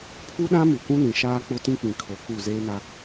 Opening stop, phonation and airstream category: aspirated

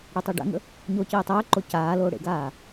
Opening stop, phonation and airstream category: plain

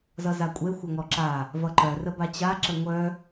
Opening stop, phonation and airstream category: ejective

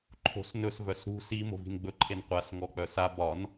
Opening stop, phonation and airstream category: click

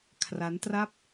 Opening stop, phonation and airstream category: aspirated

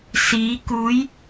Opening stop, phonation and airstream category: plain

